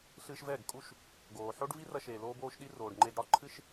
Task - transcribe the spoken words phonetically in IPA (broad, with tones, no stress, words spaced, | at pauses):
ɬɨ˧ʃvɛ˦˨ɡ kʼu˦ʃ | ɡoː˨ħo˦ɖ vi˦rɐ˧ʃeː˨ loː˦boː˦ʃɗi˦ roː˨ɖŋ͡ǃe˧ɡɽɒ˦ ǃʰɨ˦ʃ